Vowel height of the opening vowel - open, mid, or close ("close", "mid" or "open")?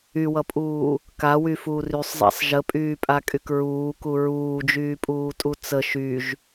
close